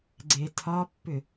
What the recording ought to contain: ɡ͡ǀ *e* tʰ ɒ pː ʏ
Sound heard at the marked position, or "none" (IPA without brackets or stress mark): e